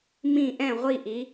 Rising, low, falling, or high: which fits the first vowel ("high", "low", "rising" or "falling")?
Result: falling